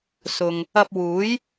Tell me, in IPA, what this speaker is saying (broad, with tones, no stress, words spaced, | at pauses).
sʊ˨ŋ | ɐ˧p̚wuː˨˥j